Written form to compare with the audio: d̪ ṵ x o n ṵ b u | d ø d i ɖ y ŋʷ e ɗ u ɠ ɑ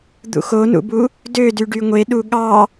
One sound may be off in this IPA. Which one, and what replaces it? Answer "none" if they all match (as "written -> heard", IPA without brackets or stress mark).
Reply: i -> y